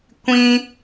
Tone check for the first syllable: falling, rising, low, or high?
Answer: high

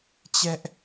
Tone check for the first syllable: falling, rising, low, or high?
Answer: high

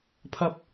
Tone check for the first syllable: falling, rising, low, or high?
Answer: rising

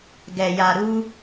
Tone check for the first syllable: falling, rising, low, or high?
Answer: low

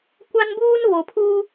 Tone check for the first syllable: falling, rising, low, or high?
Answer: high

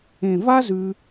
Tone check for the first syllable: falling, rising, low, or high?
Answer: low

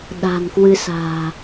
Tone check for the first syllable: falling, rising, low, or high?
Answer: low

